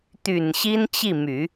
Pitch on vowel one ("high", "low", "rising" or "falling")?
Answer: low